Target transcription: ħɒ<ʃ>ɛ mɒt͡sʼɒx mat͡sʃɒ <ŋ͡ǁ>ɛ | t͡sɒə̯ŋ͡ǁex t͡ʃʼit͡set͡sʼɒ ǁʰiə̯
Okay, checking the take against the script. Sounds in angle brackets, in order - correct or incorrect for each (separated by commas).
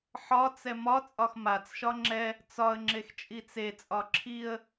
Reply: incorrect, correct